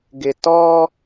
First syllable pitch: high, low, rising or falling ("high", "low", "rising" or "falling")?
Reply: low